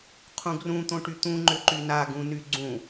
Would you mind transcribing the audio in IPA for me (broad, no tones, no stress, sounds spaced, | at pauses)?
qʰ ũ ɡ r ũ t̪ õ ʈ y t̪ ũ ŋ͡ǃ ʏ ǃ y n a ɡ ũ n y ɡ͡ǀ ũ